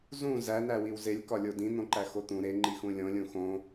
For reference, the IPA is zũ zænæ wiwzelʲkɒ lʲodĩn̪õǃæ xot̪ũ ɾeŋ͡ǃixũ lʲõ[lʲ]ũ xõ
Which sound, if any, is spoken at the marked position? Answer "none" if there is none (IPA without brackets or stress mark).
lʲ